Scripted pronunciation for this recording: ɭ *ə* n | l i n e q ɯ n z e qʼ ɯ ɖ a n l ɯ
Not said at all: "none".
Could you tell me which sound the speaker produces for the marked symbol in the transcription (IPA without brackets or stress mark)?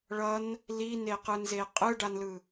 ʌ